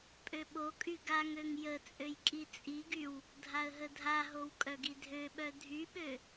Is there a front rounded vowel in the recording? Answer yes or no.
yes